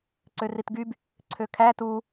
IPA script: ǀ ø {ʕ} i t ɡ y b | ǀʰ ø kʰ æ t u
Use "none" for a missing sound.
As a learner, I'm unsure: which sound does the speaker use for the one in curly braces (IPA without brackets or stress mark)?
r